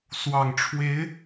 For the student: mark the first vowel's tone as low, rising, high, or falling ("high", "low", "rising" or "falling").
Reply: low